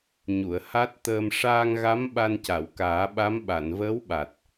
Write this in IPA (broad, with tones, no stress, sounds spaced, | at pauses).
ɲ u˨˩˨ ə̯ h a˦˥ t̚ t̪ əː˧ m ʂ aː˧ ŋ ɣ a˧˥ m ɓ a˧ n c a˨˩˨ w k aː˨˩˦ ɓ a˧˥ m ɓ a˨˩˨ n v əː˧˥ w ɓ a˨˩ t̚